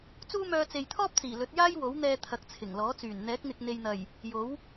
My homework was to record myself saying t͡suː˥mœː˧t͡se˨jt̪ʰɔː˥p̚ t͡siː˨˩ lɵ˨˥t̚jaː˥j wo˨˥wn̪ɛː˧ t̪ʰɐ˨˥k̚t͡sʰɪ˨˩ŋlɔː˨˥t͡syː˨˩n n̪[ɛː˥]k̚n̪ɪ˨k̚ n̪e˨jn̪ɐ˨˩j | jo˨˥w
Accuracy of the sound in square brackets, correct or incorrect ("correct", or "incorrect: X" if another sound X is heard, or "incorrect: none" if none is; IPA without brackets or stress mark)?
incorrect: ɛː˨˥